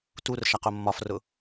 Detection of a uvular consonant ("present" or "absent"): present